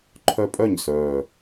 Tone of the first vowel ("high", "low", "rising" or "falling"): high